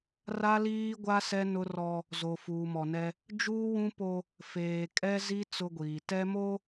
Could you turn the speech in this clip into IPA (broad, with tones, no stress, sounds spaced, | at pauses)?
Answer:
r a˦ l iː˦ ɡʷ a˦ s ɛ˦ n ʊ˦ r ɔ˦ | z o˨ f uː˨ m ɔ˨ n ɛ˦ | d͡ʒ uː˦ w ũ˦ p o˦ | f eː˨ kʼ ɛ˦ z i˦ t͡s ʊ˦ ɡʷ iː˨ t ɛ˦ m o˦